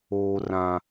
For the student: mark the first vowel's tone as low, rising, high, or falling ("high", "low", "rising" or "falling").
low